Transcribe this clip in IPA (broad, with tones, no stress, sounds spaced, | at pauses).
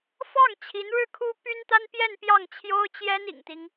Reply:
f ɑ˥˩ ŋ t͡ɕʰ i˧˥ n ɻ ɻ̩˥˩ kʰ u˥ p y˥ n t̪ a˥ n p j ɛ˥˧ n p j ɑ˥˩ ŋ t͡ɕʰ j o˥ ʊ̯ t͡ɕ j ɛ˥ n ḭ˨˩ ŋ t̪ i˦ ŋ